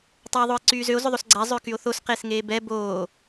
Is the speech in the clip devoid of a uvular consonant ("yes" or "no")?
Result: no